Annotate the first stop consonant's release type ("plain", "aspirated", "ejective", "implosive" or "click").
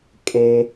ejective